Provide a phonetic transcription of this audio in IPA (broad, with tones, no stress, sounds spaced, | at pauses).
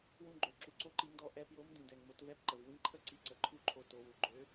w ũ˧ ɡ͡ǃ ø˩˧ ǁ u˩ ǀ o˧˥ ǃ i˩˧ ŋ d ɔ˧ ʔ ɛ˧ p j o˧˥ m d ĩ˩ d ɛ˩ ŋ m o˩˧ t v ɛ˧˥ p ǃ ə˩ v w ĩ˧˥ ǃʰ ə˥˩ ǀ i˧˥ ǀ ə˩˧ ǃʰ u˥˩ ǃʰ o˧ t o˩˧ w u˩ ɡ͡ǃ ø˧˥